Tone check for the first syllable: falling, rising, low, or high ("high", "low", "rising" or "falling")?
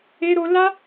high